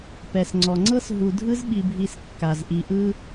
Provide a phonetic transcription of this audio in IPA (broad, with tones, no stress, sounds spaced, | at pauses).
p ɛ˩ s ŋ͡ǀ ɔ˩ ŋ͡ǀ ɤ˦ s ɦ u˨ dʱ ɯ˥ z ɓ i˨ bʱ i˨ s kː a˩ z ʔ i˨ ʔ ɯ˥